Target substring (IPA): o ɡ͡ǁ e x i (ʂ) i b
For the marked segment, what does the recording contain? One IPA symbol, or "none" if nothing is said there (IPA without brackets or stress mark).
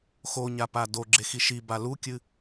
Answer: ʃ